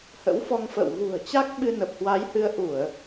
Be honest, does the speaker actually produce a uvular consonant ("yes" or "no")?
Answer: no